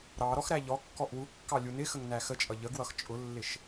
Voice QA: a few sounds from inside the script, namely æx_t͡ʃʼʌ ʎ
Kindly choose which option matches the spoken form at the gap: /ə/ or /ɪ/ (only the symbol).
ə